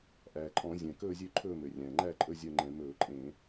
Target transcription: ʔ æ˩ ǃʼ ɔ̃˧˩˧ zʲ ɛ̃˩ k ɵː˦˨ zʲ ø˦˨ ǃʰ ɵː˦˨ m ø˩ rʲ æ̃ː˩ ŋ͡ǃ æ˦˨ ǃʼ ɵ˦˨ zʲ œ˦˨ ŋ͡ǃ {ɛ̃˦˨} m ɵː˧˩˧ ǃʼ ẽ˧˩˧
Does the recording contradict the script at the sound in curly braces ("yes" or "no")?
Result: yes